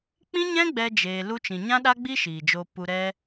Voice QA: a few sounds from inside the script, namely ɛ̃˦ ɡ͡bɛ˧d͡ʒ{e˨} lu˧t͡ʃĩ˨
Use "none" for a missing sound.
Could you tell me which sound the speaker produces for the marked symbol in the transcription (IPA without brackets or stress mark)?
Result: eː˨